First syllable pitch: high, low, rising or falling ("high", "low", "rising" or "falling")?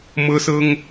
high